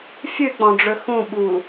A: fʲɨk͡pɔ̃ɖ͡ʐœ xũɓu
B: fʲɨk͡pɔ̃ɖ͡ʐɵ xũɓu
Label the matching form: B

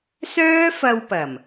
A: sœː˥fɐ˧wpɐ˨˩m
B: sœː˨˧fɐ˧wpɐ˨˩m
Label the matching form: A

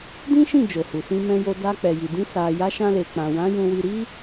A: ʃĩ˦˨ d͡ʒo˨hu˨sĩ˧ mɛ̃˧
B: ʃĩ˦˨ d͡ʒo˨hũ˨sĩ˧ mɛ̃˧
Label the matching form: A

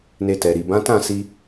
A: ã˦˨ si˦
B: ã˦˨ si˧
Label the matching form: B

